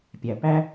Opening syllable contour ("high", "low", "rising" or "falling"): low